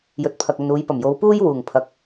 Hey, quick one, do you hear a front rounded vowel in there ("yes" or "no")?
no